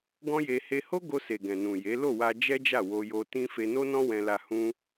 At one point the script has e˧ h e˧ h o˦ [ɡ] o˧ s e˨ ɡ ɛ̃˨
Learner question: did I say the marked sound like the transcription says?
yes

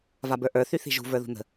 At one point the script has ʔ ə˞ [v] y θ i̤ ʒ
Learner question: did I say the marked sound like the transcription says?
no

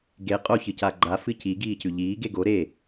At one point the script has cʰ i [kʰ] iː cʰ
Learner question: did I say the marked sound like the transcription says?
no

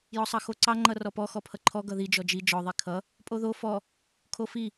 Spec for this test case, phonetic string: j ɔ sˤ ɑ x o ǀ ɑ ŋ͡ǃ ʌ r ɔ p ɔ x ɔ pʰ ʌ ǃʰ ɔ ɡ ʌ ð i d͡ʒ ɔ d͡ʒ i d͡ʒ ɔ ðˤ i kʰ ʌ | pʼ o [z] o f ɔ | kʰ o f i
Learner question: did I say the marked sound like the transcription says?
no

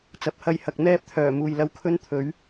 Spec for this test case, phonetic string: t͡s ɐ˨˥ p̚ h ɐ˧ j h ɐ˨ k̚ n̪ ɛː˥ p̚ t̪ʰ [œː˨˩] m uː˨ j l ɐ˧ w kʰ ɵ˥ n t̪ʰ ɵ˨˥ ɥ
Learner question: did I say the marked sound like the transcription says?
yes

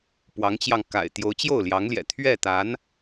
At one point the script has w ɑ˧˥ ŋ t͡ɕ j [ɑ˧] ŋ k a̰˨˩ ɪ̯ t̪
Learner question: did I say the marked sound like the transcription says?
yes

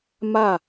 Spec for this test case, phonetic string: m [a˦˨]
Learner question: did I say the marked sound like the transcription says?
yes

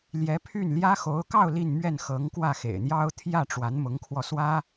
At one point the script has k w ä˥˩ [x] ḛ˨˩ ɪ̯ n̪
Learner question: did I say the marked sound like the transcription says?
yes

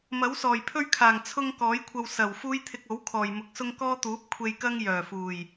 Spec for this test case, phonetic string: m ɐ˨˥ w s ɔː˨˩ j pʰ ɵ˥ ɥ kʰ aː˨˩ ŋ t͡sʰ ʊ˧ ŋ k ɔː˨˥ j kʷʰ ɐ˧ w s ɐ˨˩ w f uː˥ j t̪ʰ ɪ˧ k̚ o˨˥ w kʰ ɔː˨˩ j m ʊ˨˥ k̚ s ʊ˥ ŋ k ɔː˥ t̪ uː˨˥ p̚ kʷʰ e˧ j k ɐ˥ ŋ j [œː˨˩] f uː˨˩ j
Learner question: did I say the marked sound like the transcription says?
yes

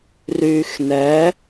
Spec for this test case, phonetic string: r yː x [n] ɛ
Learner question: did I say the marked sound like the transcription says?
yes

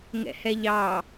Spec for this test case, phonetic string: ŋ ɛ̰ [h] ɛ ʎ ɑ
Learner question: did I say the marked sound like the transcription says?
yes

